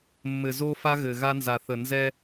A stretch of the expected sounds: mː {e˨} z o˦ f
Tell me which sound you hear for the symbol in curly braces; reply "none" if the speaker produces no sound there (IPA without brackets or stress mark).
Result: ɘ˨